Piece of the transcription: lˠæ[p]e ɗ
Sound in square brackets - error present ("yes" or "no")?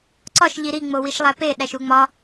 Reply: no